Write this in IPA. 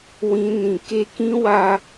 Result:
w ĩ˦ n ĩ˧ k e˦ k ĩ˦ w a˧

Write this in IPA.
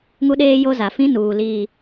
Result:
ŋ u˦ ɗ eː˦ j o˦ z a˨ f ĩ˦ n uː˨ l iː˨

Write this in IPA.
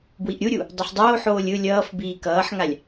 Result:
b w i ʔ ɾʲ u ɾʲ u | dˤ ʌ ħ dˤ oː ħ oː lʲ ɯ lʲ ʌː f b iː k ʌː ħ ŋ a lʲ

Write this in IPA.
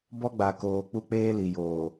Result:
b ɔ˦ ɡ͡b a˨ k oː˨ k͡p u˦ k͡p eː˦ l i˨ j oː˨

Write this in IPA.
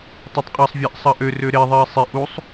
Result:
tˤ ɛ tˤ qʼ ɑ sˤ vʲ ɑ ʔ sˤ ɐ ʔ ø r ø ɾ e ðˤ ɪː sˤ ɪ ʔ u sˤ

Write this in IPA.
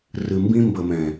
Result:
r ɨ˨ m b ĩ˦ m b ə˨ m ɛ̃˨

